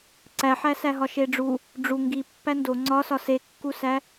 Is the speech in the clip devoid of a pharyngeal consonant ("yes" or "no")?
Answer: no